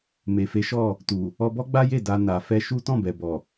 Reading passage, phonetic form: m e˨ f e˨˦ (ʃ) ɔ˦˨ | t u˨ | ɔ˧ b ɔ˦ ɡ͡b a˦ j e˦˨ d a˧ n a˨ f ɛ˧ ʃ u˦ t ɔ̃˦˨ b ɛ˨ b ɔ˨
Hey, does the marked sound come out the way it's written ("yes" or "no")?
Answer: yes